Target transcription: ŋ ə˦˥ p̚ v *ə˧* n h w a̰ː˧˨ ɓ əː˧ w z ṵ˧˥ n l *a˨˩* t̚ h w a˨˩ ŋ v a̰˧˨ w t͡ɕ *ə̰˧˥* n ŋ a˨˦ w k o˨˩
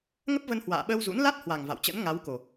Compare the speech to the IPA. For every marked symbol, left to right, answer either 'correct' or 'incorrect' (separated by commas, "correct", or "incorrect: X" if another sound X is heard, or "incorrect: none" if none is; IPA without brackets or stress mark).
correct, incorrect: a˦˥, correct